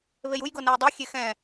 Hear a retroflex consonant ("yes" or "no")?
no